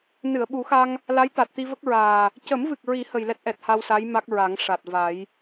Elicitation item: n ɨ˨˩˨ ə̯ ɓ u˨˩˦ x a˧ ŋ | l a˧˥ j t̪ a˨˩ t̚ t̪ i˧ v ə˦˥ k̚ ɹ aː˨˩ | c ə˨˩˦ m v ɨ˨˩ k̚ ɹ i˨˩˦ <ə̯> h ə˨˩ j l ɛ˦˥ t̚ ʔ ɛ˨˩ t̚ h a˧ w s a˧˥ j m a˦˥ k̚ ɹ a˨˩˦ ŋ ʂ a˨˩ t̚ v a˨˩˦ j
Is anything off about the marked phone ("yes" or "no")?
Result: yes